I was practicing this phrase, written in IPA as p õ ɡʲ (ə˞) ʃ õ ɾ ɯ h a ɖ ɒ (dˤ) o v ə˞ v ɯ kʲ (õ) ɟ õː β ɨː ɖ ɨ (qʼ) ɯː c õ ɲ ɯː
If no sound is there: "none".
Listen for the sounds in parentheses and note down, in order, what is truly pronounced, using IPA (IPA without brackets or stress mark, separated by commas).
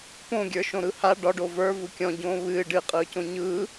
ə˞, ɖ, ɔ̃, qʼ